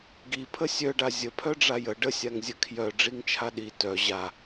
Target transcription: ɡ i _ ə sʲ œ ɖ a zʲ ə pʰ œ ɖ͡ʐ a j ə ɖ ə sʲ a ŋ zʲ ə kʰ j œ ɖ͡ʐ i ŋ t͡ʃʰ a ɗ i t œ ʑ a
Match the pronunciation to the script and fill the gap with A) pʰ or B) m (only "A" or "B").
A